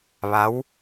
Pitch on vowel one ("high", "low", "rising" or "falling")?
rising